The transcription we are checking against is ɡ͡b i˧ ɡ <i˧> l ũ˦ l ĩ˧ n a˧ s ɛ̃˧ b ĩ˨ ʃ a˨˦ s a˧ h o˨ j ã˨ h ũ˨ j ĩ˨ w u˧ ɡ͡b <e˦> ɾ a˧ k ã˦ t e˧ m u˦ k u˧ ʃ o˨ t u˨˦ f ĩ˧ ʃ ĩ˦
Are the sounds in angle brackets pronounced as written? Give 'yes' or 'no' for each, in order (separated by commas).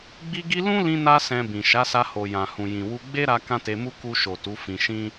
yes, yes